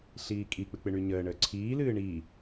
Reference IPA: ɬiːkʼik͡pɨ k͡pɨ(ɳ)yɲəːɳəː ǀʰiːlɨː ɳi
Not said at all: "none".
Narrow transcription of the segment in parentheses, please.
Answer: ɳ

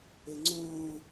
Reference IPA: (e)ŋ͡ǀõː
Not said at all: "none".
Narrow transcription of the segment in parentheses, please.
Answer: e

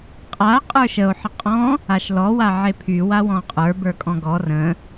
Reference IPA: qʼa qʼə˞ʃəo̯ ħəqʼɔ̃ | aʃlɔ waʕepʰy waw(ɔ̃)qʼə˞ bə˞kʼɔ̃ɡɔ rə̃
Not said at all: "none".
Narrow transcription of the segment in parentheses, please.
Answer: ɔ̃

